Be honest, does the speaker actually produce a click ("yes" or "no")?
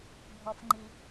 yes